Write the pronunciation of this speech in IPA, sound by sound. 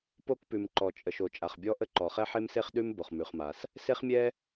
p o˥ k p ʉ˩ m ǃ ɔ˩ t͡ʃʼ ə˩ ʃ o˩ t͡ʃʼ a˩ χ bʲ ɔ˥ ʔ ə˥ ǃ ɔ˩ χ ɛ˥ ħ e˥ m s e˥ χ ɗ ʉ˥ m b o˩ χ m ʉ˩ χ m a˩ s | s e˥ χ mʲ ɛ˥

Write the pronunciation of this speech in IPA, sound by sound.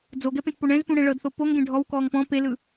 d͡z o ɡ ɛ p ẽ t p o ɳ ɛ̃ z p ũ ɽ ɛ̃ ɭ ɤ d θ o p o ŋ ɡ ẽ ɖʱ ɔ w k ɔː ŋ p ɔ̃ p e l ɯ

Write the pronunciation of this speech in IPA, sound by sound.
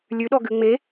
lʲ ʉ ɗ ɔ ɡ ʉ ŋ͡m e

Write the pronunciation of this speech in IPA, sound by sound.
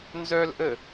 n z œ l ʔ ə

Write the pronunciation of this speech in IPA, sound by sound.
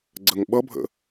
ɡ͡ǀ ə ŋ ɓ ʌ bʱ ə̰

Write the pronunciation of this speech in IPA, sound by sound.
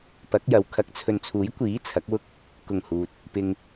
p ɐ˨˥ k̚ j ɐ˨ w kʰ ɐ˨˥ k̚ t͡sʰ ɵ˨ n t͡sʰ uː˨˥ j kʷ iː˨˥ t͡sʰ ɐ˨˥ k̚ w ʊ˥ k̚ | k ʊ˨˩ ŋ h uː˨ t̚ | p ɪ˨ ŋ

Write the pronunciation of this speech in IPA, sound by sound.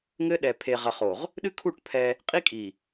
ŋ ɘ˦ ɗ ɛ˨ pʰ e˨ ʁ ɐ˨ χ o˨ ʁ | ɗ ɨ˦ kʰ u˦˨ ʈ pʰ ɛ˦ | qʼ i˦ kʼ i˨

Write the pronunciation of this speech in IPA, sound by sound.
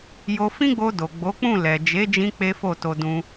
j o˧ f ĩ˦ ɡ͡b o˧ d o˨ ɡ͡b o˨˦ k͡p ũ˦˨ l ɛ˨ d͡ʒ e˨˦ d͡ʒ ĩ˧ k͡p e˦ f o˦˨ t o˧ d ũ˧

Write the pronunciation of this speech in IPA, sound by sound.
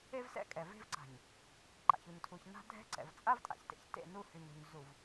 e˦ v s ɛ̰˦ kʼ ɛ˨ v e̤˦ v ǀ a̤˨ ɲ | ǃ a̰˨ ç u˨ ɲ tʰ u˨ ç n a̤˦ dʱ ɛ̤˦ ǀ ɛ̰˨ v t͡sʼ a˦ v tʼ a̰˨ ç t ḛ˨ ç t ḛ˦˨ n u˦ h y˨ ɲ ɾ ṳ˨ ɲ z u˨ v

